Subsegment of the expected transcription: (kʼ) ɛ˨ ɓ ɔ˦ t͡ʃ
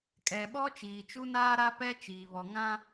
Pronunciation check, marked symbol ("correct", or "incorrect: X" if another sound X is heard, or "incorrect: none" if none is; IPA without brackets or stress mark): correct